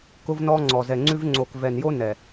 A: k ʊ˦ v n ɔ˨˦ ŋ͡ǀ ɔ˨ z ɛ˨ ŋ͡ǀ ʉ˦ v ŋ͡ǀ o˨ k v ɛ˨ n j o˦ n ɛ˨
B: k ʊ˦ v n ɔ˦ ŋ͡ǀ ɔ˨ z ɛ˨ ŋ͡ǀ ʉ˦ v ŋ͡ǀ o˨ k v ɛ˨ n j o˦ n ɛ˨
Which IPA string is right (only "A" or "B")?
B